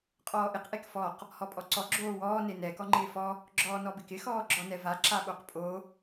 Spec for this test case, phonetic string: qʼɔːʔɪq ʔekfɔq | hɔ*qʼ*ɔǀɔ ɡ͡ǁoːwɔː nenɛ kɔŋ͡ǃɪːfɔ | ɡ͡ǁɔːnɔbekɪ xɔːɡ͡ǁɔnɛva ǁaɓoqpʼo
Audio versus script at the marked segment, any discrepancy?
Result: yes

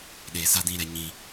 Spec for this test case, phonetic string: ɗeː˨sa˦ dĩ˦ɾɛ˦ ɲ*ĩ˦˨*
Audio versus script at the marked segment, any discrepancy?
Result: yes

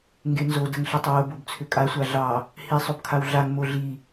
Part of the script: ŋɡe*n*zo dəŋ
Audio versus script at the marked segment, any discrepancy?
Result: no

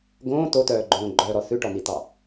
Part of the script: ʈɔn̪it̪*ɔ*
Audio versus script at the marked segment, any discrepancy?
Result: yes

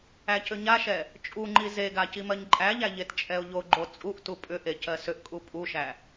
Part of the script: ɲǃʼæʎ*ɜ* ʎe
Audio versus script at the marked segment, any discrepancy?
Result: yes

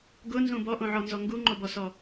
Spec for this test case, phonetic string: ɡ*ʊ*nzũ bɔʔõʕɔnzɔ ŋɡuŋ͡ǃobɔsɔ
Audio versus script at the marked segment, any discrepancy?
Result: no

